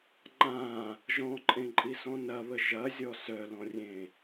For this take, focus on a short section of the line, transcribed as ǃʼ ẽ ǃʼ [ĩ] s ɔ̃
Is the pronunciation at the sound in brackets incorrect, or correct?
incorrect